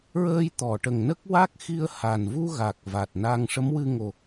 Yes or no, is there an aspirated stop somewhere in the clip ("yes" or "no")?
no